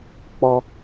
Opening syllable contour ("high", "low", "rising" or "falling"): high